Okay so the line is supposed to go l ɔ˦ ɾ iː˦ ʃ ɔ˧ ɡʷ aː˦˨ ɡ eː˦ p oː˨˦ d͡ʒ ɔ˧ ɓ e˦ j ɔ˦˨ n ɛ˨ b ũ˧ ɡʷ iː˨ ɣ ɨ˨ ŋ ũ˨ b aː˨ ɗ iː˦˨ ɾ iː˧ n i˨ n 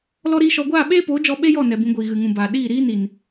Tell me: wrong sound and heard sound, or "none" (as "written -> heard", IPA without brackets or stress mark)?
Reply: ɡ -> ɓ